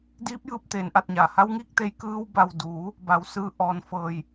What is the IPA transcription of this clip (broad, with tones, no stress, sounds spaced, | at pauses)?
d iː˧˥ p̚ j ɯː˧ p̚ t̪ eː˩˧ n ʔ a˧˩ t̚ ɲ a˩ h a˧˥ w ŋ iː˥˨ k̚ t̪ e˧ j k ɯː˧ w b a˧˩ w d uː˩˧ | b a˧˩ w s ɯː˧ ʔ ɔː˧˩ n f ɤː˧˩ j